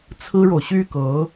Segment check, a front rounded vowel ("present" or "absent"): present